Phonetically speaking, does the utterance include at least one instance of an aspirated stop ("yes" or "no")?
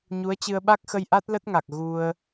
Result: no